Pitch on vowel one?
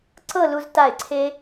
falling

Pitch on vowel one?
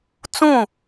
falling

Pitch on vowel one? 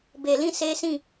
low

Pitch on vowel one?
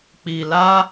low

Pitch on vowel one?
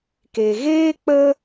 low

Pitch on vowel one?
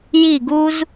falling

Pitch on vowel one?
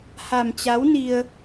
low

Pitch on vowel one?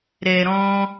low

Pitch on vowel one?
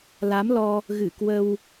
rising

